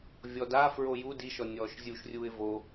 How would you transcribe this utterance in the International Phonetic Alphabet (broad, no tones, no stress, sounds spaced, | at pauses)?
vʲ ɔ d a f ɹ o j u d i ʃ ɔ nʲ ɔː ʃ zʲ u ʃ rʲ uː ɪ̯ v o